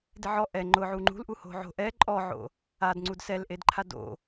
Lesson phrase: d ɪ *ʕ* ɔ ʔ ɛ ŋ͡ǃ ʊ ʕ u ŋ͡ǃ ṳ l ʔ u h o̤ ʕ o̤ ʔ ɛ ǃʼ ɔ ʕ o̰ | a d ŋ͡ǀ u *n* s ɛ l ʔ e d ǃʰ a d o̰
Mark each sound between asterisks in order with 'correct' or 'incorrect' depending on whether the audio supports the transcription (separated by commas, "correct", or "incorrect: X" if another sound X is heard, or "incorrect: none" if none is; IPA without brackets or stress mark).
correct, incorrect: d